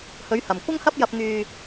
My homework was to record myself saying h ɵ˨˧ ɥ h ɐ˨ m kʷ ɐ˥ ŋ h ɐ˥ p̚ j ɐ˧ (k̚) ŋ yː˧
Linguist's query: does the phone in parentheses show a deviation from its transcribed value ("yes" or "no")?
yes